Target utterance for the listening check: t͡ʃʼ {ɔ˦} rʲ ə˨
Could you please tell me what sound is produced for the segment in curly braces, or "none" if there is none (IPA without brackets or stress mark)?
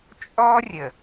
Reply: ɔ˦